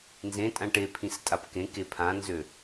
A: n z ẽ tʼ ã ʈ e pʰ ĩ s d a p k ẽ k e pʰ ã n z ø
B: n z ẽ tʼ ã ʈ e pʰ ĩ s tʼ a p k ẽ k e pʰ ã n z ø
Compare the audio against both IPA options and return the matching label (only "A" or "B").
B